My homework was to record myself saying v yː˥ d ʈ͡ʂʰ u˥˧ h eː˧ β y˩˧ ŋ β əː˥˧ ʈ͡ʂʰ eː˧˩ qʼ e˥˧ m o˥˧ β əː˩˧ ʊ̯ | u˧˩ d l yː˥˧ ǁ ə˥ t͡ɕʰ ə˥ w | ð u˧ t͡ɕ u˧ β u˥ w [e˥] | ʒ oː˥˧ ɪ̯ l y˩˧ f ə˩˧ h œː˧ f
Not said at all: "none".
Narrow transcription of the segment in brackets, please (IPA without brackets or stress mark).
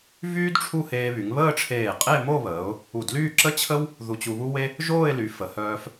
e˥